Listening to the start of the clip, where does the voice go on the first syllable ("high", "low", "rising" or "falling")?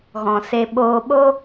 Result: low